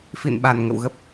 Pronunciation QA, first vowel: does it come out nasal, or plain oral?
oral